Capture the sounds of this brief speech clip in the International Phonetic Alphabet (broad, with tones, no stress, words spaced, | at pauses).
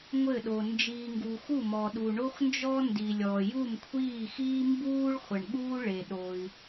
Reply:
ŋʷɘ˦˨ɗo˨ nd͡ʒiː˨ŋɡu˨ xu˦˨mɔ˨ ɗu˨ ɳo˦xnd͡ʒɔ˦ ndi˨lʲɔ˨ ju˦˨mkʷʰiː˦˨xiː˦ mbuː˦ɭ χʷɘ˨ɳɠuː˦ ɭe˨ ɗo˨i̯